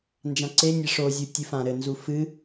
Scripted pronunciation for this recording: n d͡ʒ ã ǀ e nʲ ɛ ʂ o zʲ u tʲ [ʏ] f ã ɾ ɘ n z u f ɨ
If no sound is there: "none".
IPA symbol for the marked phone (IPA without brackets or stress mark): ɨ